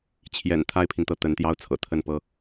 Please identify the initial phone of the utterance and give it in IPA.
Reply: t͡ɕʰ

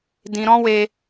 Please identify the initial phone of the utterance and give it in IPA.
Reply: d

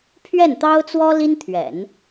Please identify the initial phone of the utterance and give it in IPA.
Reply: pʰ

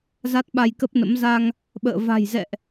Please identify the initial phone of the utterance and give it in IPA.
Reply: z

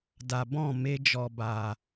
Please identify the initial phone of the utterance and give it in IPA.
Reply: d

